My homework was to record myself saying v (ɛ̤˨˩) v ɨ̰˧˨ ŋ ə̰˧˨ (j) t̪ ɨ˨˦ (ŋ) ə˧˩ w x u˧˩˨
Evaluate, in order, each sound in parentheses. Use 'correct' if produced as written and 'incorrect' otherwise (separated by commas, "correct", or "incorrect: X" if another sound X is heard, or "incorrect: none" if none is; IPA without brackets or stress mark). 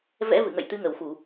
incorrect: ɛ̰˧˥, correct, correct